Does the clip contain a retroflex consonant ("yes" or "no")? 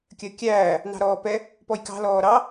no